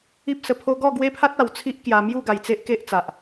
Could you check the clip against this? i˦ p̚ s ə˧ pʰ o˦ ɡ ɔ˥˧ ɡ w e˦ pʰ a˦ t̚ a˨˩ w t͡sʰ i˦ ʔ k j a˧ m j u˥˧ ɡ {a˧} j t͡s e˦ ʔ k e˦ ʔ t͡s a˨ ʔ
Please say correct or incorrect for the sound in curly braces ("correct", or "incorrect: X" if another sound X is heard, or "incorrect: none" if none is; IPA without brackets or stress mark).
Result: correct